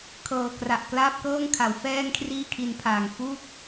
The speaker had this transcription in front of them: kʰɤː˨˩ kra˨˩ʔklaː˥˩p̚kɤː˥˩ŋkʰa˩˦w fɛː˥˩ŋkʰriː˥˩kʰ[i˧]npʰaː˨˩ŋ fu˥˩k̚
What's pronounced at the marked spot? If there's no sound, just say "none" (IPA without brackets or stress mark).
i˧